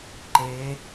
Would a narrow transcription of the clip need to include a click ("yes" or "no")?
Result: yes